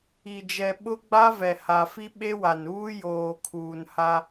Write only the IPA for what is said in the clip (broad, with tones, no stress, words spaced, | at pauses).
i˨d͡ʒɛ˨ ɓʊ˦ ɡ͡ba˦ vɛ˨ ha˨fi˦ ɓe˦wa˨nuː˦ joː˨kʰuː˨nha˦